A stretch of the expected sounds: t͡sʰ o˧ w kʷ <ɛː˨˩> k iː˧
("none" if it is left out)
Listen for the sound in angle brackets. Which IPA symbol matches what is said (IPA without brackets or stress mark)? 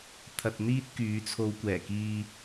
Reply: ɛː˨˩